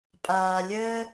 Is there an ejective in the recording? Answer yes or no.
yes